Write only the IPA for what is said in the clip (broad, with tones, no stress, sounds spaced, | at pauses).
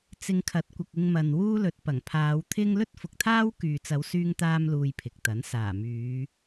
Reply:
t͡s ɪ˧ ŋ kʰ ɐ˨˥ t̚ kʷ ɐ˨ k̚ ɪ˧ ŋ m ɐ˨ n w uː˥ l ɵ˨˥ t̚ p ɐ˨˩ ŋ pʰ aː˨˧ w t̪ʰ ɪ˥ ŋ l ɵ˥ t̚ f ʊ˨ k̚ t̪ʰ aː˥ w k yː˨ t͡s ɐ˨˧ w s yː˧ ŋ t̪ aː˥ m l uː˧ j pʰ ɪ˨ k̚ t̪ ɐ˨˥ n s aː˨˩ m yː˨˧